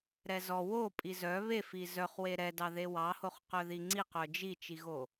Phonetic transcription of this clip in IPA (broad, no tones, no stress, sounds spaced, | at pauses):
ɾ ɛ z ɔ w o pʼ i z œ β e f i z œ χ w e ɾ ɛ d ɑ ð e w ɑ h o χ q œ ð i ŋ͡ǀ i q œ d͡ʒ i t͡ʃ i ɣ o